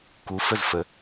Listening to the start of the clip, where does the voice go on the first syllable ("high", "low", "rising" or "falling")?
rising